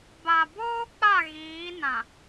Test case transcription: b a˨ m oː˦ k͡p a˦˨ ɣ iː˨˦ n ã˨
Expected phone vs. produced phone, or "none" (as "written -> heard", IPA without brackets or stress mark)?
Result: m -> b